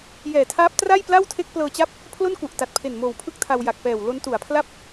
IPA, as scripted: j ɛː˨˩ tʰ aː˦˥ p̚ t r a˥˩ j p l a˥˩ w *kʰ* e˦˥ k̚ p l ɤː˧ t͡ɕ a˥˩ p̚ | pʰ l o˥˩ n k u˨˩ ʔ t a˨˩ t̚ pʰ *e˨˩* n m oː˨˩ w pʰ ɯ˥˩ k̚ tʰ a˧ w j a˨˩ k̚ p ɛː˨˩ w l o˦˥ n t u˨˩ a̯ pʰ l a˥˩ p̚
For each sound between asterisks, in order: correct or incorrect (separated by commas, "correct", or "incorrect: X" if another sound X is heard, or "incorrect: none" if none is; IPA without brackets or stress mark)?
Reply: incorrect: tʰ, correct